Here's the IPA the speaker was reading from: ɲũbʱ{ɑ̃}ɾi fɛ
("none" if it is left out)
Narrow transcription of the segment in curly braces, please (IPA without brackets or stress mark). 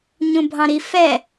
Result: ɑ̃